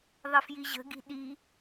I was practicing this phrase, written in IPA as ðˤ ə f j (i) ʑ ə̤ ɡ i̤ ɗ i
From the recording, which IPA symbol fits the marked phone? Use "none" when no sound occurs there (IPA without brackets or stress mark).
i